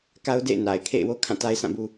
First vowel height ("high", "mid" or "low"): low